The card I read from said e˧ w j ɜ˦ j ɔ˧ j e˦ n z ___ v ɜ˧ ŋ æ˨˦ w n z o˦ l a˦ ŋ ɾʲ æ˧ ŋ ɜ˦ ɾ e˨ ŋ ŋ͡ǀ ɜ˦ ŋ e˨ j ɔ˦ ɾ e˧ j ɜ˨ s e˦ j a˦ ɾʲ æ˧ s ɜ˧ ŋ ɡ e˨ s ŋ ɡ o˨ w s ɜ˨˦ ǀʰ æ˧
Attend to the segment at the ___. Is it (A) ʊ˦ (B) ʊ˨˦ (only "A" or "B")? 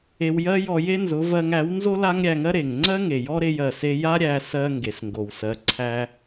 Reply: B